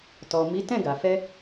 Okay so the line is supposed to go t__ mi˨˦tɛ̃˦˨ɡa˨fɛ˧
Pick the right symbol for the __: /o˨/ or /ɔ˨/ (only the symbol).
ɔ˨